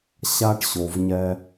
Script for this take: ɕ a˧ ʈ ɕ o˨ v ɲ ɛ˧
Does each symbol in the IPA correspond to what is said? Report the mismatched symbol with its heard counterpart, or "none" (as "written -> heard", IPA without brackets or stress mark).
none